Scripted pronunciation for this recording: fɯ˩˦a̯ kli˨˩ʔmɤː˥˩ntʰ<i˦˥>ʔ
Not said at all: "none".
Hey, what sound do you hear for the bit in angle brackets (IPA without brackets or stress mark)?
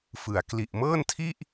i˥˩